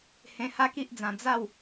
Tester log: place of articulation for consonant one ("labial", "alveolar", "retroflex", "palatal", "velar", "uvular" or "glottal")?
glottal